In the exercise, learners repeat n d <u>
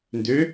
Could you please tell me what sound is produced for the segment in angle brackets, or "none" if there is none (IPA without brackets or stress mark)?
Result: ø